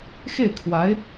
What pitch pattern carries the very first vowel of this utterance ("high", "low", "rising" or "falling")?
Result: falling